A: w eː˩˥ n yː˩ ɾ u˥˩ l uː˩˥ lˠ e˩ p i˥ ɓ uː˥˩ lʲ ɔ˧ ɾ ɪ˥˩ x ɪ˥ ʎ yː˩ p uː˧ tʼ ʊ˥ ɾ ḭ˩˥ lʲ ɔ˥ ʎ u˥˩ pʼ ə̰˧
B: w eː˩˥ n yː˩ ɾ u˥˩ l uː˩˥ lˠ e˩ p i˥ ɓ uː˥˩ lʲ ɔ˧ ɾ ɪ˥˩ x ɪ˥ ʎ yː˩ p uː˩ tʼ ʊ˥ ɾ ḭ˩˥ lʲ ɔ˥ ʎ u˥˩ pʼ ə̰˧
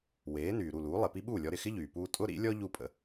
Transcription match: A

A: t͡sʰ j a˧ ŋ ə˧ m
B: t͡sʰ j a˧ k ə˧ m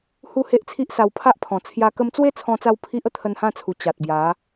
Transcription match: B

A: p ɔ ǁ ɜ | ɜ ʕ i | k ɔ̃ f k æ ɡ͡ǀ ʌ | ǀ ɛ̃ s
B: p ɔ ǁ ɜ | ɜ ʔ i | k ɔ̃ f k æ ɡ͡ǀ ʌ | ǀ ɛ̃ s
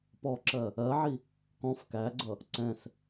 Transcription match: A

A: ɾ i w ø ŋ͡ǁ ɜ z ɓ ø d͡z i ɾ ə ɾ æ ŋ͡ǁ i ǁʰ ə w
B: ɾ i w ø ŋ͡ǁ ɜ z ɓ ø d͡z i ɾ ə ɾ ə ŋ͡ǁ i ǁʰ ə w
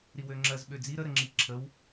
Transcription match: B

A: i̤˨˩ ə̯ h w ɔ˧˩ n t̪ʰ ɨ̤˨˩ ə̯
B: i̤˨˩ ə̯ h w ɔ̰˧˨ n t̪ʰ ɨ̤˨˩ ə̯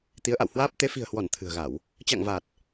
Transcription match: A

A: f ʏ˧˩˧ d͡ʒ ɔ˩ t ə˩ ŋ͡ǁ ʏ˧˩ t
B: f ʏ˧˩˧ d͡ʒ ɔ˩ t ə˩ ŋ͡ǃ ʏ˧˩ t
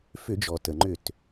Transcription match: B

